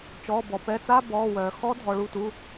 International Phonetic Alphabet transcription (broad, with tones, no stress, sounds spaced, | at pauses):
t͡ʃ ɔː˩˧˩ b ɔ˩ p ɛ˩˧˩ t͡s a˧˥˧ b ɔː˩˧˩ w œː˩ x ɔ˧˥ dʱ ɔ˩ ɭ u˩˧˩ t u˩˧˩